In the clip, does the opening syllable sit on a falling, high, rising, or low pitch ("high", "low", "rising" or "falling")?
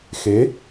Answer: rising